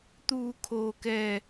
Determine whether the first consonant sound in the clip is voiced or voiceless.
voiceless